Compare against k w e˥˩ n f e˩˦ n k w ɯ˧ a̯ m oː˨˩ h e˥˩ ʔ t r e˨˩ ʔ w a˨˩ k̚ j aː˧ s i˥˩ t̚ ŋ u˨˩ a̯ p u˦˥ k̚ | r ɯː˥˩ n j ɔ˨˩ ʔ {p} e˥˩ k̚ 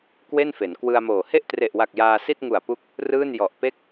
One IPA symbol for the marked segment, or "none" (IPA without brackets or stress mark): p